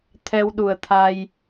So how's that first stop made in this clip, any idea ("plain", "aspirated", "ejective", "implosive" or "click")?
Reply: aspirated